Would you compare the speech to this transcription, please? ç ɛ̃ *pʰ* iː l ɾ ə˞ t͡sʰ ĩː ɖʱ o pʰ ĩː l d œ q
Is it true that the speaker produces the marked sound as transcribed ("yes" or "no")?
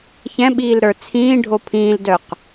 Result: no